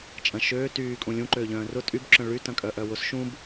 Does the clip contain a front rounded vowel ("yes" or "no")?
yes